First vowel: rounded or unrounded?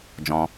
rounded